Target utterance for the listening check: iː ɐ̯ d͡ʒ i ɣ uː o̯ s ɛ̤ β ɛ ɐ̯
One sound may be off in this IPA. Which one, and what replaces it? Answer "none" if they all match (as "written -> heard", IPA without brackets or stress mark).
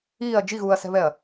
o̯ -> ɐ̯